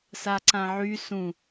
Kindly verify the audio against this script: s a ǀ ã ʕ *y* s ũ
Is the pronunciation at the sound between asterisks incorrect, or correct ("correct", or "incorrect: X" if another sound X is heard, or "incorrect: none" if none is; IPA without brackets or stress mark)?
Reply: correct